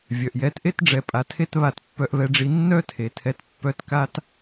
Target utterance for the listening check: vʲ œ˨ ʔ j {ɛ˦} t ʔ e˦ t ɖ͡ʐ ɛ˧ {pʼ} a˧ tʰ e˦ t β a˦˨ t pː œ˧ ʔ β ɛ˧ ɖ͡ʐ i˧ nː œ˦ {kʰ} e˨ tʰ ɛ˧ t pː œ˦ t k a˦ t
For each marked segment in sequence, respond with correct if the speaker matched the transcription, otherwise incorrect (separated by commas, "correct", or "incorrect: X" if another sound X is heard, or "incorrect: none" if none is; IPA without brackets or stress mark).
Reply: incorrect: ɛ˨˦, correct, incorrect: tʰ